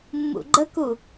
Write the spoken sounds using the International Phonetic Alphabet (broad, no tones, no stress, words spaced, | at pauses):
mːṵɡ͡ǃəku